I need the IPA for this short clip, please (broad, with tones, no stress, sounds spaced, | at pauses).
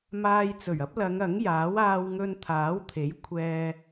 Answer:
m aː˧ j t͡s ɵ˨˩ ɥ ɐ˥ p̚ l ɐ˨˧ ŋ ɐ˨˥ ŋ j aː˨˥ w aː˧ w ŋ ɵ˧ n t̪ʰ aː˨˥ w t̪ʰ e˨˥ j kʷʰ ɛː˧